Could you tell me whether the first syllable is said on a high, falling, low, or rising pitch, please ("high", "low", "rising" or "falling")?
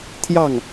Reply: falling